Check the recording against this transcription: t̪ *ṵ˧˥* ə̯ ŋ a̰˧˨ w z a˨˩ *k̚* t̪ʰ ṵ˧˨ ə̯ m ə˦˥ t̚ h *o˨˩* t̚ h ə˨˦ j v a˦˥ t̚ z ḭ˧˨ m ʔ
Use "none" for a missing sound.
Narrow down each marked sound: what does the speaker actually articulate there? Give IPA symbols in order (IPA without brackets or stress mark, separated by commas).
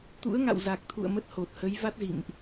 ṵ˧˥, k̚, o˨˩